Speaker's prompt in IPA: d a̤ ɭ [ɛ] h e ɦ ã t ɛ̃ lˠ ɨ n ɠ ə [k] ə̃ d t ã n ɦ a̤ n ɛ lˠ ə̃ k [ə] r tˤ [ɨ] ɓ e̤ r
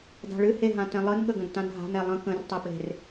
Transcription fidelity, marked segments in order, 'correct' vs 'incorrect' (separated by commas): incorrect, incorrect, incorrect, correct